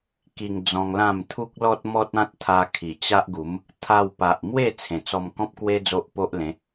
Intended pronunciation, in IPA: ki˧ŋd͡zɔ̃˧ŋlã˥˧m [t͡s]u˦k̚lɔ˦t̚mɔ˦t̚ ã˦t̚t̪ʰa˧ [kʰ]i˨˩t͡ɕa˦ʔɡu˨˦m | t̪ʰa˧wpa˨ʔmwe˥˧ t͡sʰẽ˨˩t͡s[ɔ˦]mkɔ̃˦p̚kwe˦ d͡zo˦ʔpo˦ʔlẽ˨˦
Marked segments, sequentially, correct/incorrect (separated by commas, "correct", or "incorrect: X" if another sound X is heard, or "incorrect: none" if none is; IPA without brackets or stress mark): incorrect: t̪ʰ, correct, incorrect: ɔ˧